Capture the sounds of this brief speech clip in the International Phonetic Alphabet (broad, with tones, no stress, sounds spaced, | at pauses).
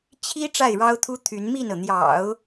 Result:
t͡ɕʰ i˥ ʈ͡ʂ a˥˩ ɪ̯ ɻ ɑ˥ ʊ̯ t̪ʰ u˥ t̪ʰ y˧˥ n m i˥˩ n ɤ˩ n̪ j ɑ̰˨˩˦ ʊ̯